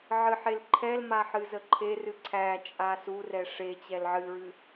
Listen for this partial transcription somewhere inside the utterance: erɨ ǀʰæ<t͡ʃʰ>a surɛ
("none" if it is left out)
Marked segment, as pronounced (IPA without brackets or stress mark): t͡ʃʼ